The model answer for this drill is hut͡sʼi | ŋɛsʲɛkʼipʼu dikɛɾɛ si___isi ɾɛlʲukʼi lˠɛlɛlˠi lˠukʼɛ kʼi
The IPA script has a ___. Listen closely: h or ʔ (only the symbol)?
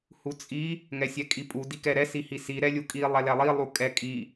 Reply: h